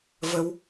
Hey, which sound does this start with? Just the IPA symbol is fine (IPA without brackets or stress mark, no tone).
v